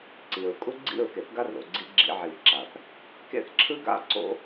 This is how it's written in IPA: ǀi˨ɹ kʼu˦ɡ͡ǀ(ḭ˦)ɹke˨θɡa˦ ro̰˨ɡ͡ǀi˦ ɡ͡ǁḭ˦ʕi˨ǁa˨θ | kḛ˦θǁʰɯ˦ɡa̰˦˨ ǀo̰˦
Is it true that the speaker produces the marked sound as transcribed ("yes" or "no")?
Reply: no